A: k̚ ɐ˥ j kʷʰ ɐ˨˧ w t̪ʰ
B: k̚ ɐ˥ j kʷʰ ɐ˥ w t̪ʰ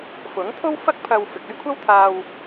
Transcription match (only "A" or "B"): B